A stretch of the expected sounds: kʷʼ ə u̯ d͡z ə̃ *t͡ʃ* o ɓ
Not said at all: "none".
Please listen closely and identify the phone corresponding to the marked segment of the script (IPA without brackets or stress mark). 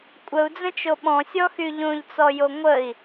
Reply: t͡ʃ